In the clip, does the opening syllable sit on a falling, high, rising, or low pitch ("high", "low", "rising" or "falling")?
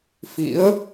rising